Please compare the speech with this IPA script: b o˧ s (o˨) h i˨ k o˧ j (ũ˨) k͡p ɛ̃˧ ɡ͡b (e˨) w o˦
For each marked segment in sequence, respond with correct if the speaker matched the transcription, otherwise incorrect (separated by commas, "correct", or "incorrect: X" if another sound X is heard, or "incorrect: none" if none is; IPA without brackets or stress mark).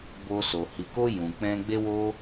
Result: correct, correct, incorrect: e˧